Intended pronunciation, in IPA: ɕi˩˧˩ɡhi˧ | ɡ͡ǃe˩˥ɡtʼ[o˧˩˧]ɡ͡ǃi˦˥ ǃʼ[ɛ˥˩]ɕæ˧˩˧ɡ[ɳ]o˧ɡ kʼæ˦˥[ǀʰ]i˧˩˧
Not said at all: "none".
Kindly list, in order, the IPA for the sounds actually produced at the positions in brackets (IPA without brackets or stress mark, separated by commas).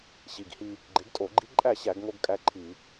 o˧˩˧, æ˥˩, ŋ, ǃʰ